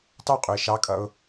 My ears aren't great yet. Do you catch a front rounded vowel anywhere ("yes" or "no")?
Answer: no